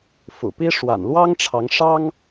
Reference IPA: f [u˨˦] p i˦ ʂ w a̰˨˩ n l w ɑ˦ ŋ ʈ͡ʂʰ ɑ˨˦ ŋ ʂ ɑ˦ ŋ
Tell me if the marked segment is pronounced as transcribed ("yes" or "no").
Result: no